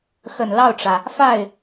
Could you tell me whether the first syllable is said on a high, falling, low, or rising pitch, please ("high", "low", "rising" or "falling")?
low